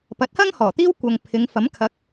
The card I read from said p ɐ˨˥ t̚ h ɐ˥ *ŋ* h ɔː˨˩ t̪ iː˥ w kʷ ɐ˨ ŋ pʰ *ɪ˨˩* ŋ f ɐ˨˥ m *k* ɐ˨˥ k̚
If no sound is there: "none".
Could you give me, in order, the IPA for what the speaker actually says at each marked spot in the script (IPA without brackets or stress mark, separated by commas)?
ŋ, ɪ˨˧, kʰ